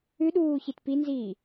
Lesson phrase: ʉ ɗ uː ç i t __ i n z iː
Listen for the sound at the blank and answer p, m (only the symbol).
p